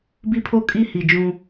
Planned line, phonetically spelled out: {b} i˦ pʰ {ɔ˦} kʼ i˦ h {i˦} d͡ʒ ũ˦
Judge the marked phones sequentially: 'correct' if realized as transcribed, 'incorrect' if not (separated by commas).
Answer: correct, incorrect, incorrect